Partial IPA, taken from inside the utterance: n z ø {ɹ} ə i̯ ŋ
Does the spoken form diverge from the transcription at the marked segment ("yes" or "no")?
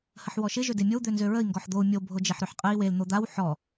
no